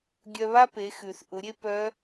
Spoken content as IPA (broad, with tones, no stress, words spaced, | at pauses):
ɡʲœ˧βa˥pe˩˧xʉ˩θ ʔʊ˩˧ɾʲe˥pœ˧˥